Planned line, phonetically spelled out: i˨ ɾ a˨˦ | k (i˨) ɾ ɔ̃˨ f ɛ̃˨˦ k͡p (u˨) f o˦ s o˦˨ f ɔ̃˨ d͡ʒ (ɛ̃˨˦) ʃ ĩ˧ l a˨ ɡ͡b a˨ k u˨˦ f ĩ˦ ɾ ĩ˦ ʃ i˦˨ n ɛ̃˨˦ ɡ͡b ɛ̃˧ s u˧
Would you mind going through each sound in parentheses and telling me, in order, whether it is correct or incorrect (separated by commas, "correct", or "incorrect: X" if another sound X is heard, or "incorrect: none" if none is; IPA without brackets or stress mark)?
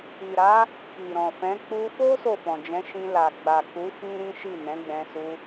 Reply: correct, incorrect: u˧, correct